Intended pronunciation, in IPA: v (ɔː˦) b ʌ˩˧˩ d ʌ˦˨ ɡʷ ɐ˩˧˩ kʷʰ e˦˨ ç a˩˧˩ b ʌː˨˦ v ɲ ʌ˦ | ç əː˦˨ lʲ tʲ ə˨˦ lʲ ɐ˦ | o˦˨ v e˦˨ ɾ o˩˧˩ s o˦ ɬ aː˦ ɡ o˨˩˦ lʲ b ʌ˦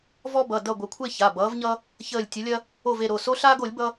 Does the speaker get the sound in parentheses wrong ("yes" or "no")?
yes